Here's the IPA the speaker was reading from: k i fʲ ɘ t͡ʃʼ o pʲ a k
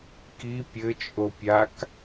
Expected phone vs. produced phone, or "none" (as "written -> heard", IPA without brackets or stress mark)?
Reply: fʲ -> pʲ